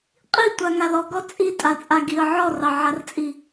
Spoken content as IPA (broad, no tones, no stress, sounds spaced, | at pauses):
qʼ i tʷ a ŋ a l ɔ ɡ ɔ t͡sʼ i tʼ a t͡sʼ a ɡ i ə̯ ʕ ɔ r ɑ ʕ a r t͡sʼ i